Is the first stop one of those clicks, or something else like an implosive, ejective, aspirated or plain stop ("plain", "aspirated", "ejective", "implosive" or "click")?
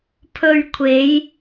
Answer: aspirated